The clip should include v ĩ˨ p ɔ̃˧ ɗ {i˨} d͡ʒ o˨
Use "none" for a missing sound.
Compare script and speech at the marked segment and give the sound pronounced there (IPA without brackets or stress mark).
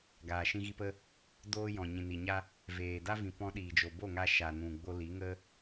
iː˨